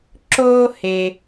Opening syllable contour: high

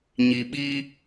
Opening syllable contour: low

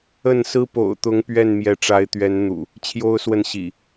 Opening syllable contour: falling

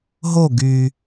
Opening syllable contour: falling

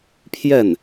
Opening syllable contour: falling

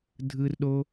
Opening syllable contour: high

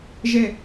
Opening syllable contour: falling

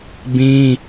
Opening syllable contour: high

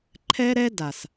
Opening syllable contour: high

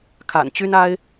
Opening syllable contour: low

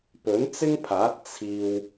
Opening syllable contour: rising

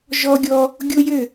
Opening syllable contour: high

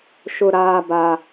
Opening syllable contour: low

